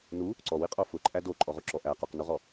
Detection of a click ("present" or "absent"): present